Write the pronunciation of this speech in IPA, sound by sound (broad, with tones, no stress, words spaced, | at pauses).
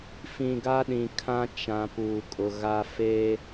fĩ˨ ɡa˦ɗĩ˨kʰã˦ t͡ʃã˨ puː˨kʼʊ˨ ɣa˦ feː˦